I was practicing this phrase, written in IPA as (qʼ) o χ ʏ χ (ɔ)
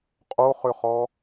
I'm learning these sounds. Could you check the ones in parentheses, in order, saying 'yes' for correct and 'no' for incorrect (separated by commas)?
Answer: yes, yes